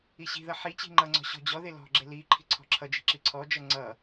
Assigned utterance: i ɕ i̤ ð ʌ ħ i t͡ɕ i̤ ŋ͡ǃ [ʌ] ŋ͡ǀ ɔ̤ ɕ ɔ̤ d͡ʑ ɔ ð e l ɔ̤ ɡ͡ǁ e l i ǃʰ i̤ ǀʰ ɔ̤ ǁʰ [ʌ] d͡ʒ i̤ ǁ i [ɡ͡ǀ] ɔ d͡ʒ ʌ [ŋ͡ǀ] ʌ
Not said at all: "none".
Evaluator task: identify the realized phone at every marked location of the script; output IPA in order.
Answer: ʌ, ʌ, ǀʰ, ŋ͡ǀ

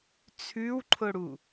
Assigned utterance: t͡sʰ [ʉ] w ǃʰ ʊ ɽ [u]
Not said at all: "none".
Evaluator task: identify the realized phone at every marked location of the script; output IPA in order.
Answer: ʉ, u

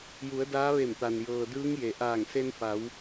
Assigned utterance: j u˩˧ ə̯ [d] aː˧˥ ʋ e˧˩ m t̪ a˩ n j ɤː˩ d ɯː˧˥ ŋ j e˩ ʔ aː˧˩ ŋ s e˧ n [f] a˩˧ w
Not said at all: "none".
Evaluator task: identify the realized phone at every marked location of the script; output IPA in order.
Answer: d, f

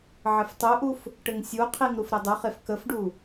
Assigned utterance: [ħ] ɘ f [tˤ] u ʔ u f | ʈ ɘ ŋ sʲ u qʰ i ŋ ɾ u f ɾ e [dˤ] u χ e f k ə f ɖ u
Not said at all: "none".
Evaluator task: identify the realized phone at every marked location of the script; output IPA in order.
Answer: ʕ, tˤ, dˤ

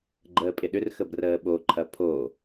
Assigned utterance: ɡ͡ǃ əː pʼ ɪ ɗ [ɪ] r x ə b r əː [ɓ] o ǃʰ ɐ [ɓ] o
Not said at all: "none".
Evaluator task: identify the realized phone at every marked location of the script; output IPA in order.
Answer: ʏ, ɓ, pʰ

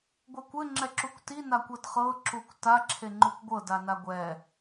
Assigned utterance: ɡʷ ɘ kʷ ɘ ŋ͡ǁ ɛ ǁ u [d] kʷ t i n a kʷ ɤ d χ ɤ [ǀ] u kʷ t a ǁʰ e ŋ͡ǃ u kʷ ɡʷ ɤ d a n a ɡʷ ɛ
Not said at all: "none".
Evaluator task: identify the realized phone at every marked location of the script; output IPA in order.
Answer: none, ǁ

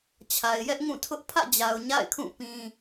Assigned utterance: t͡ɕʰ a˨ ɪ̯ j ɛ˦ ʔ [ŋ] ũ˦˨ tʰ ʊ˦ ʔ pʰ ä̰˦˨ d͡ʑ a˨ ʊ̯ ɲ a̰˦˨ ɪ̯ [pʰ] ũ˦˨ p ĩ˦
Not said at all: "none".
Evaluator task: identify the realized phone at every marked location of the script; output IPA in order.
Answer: ŋ, kʰ

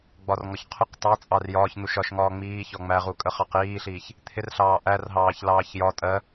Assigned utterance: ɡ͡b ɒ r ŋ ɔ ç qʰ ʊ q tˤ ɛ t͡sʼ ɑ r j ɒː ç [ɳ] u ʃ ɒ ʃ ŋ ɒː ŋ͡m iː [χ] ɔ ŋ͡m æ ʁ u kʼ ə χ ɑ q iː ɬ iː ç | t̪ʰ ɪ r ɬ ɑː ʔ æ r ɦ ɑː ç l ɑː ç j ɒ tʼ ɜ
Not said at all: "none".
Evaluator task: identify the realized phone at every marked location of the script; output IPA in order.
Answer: n̪, ç

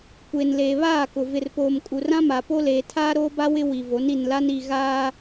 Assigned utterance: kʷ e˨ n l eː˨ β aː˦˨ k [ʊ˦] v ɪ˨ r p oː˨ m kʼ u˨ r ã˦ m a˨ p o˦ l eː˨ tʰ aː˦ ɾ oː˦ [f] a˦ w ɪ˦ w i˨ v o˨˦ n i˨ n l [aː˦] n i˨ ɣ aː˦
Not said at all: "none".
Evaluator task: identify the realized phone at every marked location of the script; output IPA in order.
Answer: ʊ˨, b, a˦

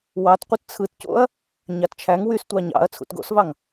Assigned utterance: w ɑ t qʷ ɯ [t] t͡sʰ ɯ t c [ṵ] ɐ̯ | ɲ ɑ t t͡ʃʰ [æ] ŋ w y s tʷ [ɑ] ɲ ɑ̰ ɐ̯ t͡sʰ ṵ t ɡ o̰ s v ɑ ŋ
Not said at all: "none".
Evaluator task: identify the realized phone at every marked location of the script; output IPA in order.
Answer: t, o̰, æ, ɑ

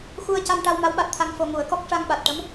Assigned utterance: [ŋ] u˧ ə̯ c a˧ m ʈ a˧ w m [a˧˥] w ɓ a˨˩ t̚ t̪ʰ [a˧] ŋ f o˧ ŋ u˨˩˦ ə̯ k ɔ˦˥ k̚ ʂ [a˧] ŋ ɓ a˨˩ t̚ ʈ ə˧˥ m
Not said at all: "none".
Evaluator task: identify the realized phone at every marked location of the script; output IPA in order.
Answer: x, a˧˥, a˧, a˧

